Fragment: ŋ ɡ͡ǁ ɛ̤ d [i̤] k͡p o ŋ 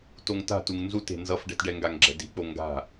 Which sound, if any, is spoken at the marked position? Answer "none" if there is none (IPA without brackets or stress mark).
i̤